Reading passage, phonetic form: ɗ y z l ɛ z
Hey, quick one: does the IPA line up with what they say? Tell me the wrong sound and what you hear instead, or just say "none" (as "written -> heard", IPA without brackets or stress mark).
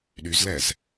none